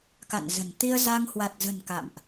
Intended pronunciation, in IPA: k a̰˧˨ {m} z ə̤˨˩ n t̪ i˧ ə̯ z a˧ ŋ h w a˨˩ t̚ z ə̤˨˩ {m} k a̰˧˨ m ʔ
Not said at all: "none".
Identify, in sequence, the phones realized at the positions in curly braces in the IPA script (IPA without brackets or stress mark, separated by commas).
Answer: n, n